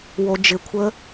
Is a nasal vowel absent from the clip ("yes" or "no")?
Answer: yes